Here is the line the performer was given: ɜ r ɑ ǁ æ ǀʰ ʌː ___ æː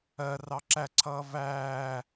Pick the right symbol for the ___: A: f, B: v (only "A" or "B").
B